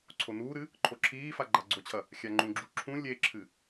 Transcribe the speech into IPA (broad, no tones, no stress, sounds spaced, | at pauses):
ǀʰ o n uː ɾ ɨ | ǃʰ o ǁʰ iː f a ɡ͡ǃ a ɡ͡ǀ o t͡ɕʰ ɐ | xʲ a ŋ͡ǃ ũ ɡ͡ǁ u ǁʰ ũ lʲ e ǁʰ ɨ